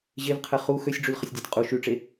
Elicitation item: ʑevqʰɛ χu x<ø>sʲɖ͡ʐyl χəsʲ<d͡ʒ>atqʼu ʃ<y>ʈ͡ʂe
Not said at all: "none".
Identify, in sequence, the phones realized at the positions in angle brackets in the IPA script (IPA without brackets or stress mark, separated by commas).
ø, dʲ, y